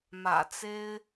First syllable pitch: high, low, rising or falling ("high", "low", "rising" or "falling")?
low